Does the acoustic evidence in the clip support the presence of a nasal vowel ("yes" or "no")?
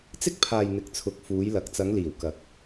no